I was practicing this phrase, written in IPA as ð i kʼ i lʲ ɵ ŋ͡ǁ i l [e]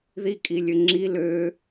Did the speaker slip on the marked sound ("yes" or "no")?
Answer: yes